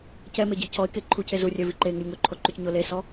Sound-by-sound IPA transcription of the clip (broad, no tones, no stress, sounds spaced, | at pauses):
c ɛ m e ɟ i cʰ ɔ ɪ̯ k e ǃʰ u cʰ e z u rʲ ɛ v i ǃ e ŋ u lʲ ŋ o ǃʰ o ǃ u c ɲ o l e s ɔ